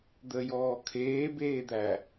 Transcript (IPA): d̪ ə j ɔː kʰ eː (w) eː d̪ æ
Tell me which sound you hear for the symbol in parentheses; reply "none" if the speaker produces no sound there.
b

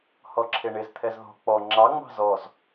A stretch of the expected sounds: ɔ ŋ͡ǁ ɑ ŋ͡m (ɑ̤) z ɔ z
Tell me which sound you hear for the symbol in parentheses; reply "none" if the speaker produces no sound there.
ɑ̤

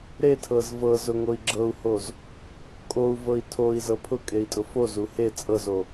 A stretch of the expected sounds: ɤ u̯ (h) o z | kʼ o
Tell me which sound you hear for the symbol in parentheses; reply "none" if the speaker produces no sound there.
h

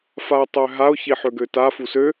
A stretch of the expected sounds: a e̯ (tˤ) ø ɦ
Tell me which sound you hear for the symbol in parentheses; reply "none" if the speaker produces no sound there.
tˤ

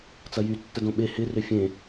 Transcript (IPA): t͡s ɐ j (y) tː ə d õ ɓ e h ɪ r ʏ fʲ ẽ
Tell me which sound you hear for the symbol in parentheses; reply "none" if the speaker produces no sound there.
y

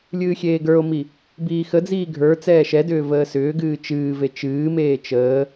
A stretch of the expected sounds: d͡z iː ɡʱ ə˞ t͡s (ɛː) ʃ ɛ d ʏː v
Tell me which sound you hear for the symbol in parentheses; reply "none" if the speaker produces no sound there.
ɛː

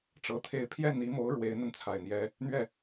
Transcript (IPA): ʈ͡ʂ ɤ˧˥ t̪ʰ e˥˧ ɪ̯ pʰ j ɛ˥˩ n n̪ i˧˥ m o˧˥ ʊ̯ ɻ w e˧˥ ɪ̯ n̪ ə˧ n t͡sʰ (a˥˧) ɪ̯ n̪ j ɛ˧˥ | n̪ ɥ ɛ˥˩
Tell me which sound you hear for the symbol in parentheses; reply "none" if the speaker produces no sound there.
a˨˩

